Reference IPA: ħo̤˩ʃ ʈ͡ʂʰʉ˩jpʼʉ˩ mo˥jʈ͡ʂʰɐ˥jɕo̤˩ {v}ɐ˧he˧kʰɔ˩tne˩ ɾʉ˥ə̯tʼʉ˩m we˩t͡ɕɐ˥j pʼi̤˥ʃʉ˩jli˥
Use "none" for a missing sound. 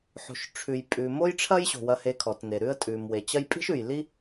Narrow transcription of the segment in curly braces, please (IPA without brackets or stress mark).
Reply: w